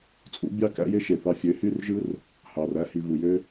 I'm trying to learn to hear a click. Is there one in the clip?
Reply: no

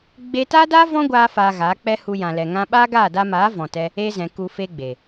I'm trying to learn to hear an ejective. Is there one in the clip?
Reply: no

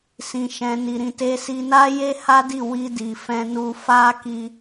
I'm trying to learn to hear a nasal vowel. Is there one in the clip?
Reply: yes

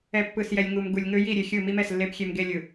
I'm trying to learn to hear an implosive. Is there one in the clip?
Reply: no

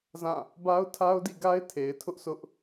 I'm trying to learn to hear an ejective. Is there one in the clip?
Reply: no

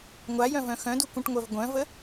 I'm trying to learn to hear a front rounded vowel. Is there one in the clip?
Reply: yes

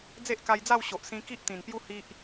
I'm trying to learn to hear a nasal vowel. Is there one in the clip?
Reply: yes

